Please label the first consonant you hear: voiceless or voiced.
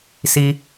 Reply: voiceless